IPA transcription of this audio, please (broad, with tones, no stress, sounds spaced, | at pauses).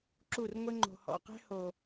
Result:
ǁ u˦˨ r ŋʷ ɘ˦ ŋ͡ǃ o̤˨ h ɔ̰˨ q ɛ̤˦ h o˨